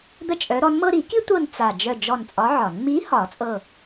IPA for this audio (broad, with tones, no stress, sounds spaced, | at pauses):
d̪ ə˥ t͡ʃʼ œ˧˥ ɾ ɔ˧˥ n m ɤ˥ ɾ i˨˩˦ k i˥ tʷ ɤ˦˨ n t͡s a˦˨ d͡ʒ œ˦˨ d͡ʒ ɔ˦˨ n t͡sʼ ɒ˧˥ ʕ ɒ˨˩˦ n m i˧˥ h ɒ˨˩˦ t͡sʼ ɤ˦˨